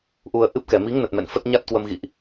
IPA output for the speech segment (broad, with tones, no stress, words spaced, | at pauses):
ʔu˧ə̯ʔɨ˦˥p̚ kɛ˨˩mi˨˦ŋnə˨˩t̚mɛ̰˧˨n fə˦˥t̚ɲa˦˥t̚kwə˧m ɣḭ˧˨ʔ